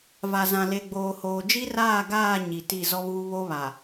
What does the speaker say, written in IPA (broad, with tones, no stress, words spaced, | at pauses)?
va˨zã˨ le˨ɡ͡boː˨hoː˨ d͡ʒi˦raː˦˨ɡaː˦˨ ɲi˨ti˦˨ zɔ˦βuː˦ βo˦βa˨